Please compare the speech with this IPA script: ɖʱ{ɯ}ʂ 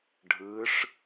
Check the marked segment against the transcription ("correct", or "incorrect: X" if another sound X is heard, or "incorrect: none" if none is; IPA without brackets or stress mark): correct